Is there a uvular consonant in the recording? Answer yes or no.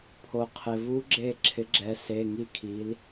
yes